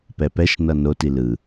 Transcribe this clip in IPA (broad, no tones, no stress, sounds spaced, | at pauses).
p ɛ p ɛ ʃ n ʌ n o t i l ɯ